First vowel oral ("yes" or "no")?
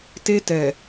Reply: yes